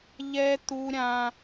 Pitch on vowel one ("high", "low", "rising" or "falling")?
high